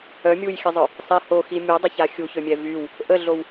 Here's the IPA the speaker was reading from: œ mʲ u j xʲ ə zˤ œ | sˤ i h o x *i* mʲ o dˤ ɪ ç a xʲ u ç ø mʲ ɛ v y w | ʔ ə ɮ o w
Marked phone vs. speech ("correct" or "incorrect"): correct